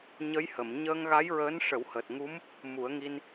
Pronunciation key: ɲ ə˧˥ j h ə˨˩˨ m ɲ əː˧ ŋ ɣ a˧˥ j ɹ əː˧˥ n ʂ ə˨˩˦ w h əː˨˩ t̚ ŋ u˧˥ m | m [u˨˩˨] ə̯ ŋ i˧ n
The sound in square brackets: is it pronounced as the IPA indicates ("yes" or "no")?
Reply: no